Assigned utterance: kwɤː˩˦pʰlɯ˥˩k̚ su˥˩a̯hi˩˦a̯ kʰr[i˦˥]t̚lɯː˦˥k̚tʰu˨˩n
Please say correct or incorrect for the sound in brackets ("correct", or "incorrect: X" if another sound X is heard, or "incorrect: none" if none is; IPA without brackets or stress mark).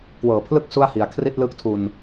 incorrect: i˥˩